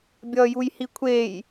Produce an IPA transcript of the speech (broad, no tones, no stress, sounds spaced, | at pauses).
bʲ ʌː j u j h i kʷʰ eː j